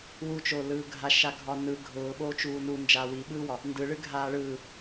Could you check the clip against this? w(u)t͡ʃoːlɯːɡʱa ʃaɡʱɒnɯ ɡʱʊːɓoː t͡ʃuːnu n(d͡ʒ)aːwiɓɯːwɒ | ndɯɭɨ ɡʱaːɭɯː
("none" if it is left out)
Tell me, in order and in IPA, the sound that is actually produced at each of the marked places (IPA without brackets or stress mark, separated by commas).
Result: u, d͡ʒ